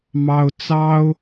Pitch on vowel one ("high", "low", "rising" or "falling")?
high